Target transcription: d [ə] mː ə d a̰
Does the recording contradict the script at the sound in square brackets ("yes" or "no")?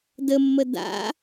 no